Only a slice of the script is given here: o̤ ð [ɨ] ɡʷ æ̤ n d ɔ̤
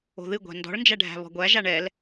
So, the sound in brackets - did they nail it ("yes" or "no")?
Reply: yes